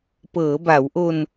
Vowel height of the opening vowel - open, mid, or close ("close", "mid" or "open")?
mid